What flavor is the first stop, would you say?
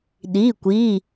implosive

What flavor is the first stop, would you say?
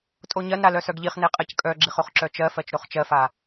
ejective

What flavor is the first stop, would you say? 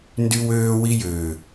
plain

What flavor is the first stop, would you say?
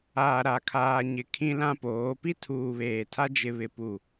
aspirated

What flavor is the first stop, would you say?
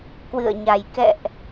plain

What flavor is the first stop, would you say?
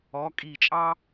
ejective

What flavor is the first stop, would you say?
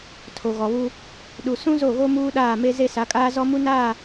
aspirated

